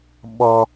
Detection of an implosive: present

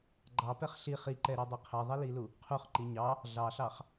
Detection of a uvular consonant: present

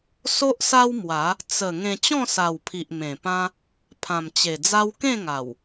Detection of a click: absent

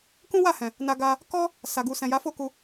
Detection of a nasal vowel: present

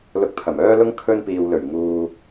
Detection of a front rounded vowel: present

